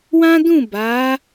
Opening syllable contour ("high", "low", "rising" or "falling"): high